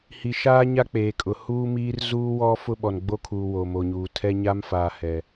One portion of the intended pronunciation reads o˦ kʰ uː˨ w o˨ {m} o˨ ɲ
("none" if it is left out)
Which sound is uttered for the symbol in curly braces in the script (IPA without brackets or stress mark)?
m